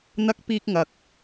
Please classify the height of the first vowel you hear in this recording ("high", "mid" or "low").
low